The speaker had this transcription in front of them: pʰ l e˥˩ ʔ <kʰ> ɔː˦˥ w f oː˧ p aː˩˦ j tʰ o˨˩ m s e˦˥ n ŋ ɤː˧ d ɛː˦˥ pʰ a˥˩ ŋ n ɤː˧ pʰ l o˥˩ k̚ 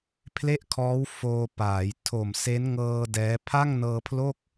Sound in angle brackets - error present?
no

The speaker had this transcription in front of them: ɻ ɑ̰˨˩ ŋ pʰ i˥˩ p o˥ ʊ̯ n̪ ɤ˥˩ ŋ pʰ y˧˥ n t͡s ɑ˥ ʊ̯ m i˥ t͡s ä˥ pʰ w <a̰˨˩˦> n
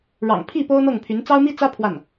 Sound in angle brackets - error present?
yes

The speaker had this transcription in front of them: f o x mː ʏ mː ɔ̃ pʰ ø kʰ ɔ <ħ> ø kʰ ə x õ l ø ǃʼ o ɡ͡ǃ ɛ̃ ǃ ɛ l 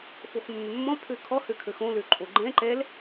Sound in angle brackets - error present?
yes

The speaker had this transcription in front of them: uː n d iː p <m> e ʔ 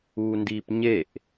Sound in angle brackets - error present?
yes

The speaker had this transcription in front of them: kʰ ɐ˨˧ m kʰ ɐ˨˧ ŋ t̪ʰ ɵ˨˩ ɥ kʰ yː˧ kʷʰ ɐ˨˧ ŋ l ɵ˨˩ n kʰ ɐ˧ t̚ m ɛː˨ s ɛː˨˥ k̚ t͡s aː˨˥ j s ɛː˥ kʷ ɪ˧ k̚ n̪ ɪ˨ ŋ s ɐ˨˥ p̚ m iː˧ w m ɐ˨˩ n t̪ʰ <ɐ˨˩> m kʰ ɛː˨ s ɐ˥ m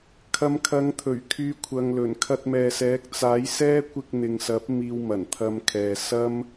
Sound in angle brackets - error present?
yes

